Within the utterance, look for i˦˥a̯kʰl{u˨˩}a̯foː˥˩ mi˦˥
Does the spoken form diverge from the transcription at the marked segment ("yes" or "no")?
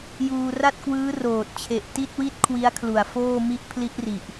no